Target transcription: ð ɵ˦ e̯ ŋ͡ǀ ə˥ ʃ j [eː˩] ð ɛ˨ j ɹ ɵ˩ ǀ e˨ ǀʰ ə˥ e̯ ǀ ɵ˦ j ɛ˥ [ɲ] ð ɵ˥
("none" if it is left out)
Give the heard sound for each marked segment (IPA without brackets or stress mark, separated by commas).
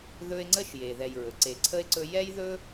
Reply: e˩, j